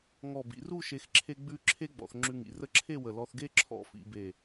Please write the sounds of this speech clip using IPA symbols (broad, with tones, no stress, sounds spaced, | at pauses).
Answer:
ŋ ɔ˧˩ b ḭ˩˧ r u˥˧ ʃ e˧ x ǁʰ e˥ ɡ͡b ʉ˥ ǁʰ e˥ ɡ͡b ɔ̰˩˧ θ ŋ͡ǁ ʉ˧ ŋ ḭ˩˧ r ə˥˧ ǁʰ e˥˧ w ə˧˩ l ɔ˧ θ ɡ e˥ ǁʰ ɔ̰˧˩ f ḭ˩˧ b e˧˩